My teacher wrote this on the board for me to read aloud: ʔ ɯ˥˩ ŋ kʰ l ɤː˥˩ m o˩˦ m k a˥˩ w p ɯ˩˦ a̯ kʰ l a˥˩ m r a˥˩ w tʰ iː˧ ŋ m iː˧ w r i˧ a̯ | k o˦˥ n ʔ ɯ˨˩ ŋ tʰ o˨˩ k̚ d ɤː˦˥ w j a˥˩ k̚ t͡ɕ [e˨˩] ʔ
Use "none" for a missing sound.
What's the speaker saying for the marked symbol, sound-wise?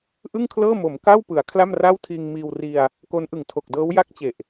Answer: e˨˩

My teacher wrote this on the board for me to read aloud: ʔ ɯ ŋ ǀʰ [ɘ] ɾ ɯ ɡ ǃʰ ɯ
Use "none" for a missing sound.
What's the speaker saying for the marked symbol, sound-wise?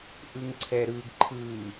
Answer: ɛ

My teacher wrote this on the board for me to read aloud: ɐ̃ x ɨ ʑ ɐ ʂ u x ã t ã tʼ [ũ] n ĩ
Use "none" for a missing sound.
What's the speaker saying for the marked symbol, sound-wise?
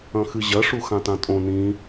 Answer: õ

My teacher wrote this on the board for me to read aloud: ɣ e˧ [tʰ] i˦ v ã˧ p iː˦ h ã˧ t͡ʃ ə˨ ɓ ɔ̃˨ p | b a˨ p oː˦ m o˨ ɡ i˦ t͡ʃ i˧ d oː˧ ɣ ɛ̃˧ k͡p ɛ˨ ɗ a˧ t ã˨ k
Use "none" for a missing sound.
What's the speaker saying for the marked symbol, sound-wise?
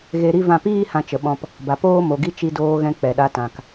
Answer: ɾ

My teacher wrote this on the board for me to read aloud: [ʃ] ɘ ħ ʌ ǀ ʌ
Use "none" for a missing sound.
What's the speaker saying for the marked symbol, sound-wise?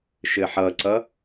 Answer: ʃ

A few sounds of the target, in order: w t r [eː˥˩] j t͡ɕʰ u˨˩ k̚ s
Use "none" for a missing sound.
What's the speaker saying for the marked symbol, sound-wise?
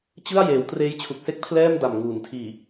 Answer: eː˦˥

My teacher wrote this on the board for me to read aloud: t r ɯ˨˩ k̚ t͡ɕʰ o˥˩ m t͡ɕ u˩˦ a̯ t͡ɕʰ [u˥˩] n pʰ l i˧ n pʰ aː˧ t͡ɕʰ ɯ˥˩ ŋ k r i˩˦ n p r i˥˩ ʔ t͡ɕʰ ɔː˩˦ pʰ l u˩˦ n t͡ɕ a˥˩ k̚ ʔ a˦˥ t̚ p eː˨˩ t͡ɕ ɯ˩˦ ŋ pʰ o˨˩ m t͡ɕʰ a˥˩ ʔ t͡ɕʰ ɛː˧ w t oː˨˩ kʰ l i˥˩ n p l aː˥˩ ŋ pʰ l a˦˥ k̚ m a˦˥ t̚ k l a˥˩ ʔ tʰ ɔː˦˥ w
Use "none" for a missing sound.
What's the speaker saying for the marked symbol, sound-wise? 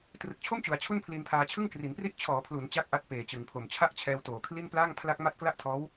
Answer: u˥˩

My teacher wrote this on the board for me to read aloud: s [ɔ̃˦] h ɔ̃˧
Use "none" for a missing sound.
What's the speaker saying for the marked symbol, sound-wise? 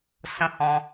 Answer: ə̃˦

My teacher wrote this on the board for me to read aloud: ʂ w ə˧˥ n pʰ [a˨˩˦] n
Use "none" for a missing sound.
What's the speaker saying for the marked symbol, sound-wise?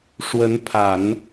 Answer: a˨˩˦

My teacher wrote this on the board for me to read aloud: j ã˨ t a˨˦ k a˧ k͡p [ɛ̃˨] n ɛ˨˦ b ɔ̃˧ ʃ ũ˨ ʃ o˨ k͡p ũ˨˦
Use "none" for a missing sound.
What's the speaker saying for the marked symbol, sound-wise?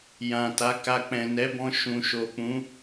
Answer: ɛ̃˨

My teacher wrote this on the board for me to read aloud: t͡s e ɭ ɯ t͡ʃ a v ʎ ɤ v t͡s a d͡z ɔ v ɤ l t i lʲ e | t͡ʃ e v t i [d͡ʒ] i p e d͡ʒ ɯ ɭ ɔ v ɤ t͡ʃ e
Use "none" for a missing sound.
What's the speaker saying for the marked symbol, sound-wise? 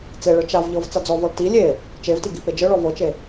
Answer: ɡ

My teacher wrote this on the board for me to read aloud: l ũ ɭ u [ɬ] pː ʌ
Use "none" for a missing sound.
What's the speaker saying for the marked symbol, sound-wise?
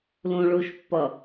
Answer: ʃ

